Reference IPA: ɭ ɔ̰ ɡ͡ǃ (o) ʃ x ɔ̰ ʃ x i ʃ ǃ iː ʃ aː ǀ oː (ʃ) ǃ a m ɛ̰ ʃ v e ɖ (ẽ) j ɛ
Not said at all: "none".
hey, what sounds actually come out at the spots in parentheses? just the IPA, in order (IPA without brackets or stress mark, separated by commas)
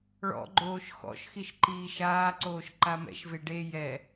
oː, ʃ, e